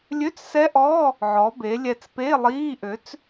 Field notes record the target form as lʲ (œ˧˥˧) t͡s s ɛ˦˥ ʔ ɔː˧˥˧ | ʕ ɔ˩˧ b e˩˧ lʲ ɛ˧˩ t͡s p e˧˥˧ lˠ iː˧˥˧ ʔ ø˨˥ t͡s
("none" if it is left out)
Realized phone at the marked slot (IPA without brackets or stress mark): ø˧˥˧